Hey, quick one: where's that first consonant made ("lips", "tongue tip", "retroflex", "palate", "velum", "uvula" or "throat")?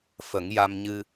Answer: lips